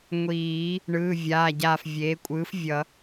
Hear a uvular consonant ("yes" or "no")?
no